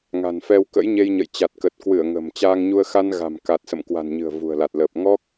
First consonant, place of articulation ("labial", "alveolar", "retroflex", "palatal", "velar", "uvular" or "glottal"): velar